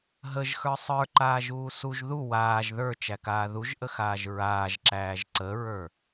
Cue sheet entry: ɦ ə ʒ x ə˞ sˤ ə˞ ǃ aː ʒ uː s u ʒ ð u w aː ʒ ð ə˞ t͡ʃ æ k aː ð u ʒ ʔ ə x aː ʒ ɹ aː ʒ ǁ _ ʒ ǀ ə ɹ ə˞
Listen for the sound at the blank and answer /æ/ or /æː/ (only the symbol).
æː